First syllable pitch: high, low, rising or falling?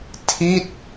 falling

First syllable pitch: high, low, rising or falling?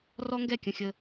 high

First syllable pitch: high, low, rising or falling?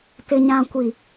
low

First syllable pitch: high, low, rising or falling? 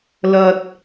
low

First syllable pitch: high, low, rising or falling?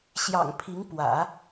low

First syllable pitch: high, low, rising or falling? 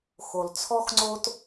low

